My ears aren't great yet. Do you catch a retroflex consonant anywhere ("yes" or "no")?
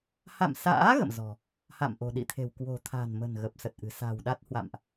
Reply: no